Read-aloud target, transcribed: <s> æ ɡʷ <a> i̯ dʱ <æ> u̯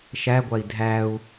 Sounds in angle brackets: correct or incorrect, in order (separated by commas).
incorrect, correct, correct